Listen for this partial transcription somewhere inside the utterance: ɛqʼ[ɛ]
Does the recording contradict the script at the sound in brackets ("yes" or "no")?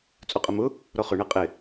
yes